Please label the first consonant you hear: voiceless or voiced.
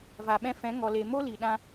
voiced